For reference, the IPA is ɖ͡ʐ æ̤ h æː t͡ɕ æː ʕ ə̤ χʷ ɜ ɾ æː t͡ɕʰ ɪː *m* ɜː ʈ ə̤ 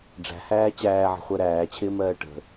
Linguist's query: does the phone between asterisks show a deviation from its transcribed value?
no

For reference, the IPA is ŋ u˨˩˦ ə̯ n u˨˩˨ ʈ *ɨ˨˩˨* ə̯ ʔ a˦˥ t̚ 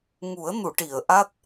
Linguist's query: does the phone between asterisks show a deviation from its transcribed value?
yes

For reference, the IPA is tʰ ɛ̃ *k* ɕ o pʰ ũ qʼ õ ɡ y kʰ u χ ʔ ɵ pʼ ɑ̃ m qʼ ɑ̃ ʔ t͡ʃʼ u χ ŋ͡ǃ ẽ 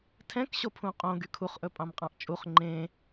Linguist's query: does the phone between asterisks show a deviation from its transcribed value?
no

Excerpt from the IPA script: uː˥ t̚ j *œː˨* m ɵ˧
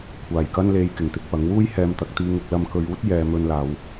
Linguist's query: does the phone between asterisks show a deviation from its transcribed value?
yes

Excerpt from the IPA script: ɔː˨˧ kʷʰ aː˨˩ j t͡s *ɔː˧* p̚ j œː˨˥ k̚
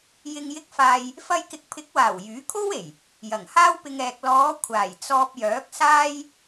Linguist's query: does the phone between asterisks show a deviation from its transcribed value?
no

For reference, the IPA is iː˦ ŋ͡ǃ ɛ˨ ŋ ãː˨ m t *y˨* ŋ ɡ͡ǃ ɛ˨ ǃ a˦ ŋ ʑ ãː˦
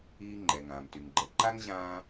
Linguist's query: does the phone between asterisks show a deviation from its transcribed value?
no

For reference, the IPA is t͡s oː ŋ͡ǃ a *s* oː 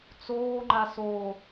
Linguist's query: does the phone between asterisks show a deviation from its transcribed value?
no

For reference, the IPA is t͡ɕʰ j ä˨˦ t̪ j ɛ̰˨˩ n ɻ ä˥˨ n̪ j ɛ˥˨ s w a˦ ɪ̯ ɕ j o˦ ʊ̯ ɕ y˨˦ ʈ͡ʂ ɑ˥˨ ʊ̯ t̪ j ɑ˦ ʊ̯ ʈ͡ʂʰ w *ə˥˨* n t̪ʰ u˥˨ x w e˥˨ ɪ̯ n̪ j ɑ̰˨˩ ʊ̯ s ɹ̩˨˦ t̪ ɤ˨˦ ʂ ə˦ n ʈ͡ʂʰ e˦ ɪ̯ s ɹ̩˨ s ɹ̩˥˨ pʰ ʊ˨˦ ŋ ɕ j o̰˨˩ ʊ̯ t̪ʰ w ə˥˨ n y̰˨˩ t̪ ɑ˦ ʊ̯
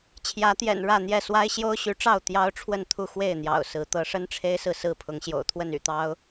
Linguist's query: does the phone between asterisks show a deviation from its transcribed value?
no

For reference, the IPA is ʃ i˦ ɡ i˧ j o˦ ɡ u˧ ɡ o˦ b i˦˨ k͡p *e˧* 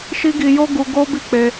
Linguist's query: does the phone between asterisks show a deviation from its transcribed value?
no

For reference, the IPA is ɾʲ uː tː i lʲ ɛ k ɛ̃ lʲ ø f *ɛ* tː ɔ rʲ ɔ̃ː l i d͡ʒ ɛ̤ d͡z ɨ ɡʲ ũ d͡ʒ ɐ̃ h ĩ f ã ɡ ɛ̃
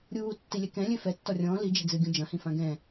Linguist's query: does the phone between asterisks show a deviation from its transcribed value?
no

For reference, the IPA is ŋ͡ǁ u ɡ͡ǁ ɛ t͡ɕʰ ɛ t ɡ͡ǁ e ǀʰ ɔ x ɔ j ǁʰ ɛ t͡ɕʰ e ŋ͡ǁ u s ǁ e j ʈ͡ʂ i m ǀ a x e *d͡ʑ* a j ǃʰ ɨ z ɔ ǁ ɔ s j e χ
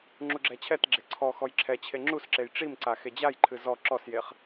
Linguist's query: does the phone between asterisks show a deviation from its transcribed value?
no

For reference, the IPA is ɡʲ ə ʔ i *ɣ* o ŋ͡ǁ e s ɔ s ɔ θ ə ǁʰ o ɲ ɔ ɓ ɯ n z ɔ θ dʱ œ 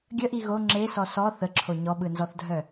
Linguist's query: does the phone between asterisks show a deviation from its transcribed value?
no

